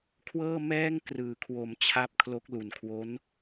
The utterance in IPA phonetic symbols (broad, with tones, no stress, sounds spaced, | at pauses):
kʰ w ɤː˥˩ m ɛː˥˩ ŋ k r ɯː˩˦ kʰ w o˨˩ m t͡ɕʰ a˦˥ p̚ kʰ l o˦˥ k̚ l u˨˩ n kʰ w o˦˥ n